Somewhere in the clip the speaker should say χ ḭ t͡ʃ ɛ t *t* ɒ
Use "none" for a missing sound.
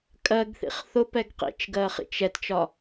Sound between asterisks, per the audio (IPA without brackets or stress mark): t͡ʃ